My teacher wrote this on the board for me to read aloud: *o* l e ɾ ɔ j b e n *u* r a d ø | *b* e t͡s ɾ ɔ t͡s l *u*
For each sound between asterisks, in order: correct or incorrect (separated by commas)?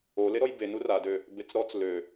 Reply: correct, correct, correct, incorrect